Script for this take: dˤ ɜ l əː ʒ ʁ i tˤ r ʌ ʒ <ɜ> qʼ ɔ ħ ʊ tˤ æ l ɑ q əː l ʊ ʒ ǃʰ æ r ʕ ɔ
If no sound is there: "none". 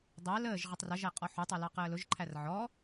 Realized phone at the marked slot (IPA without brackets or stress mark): æ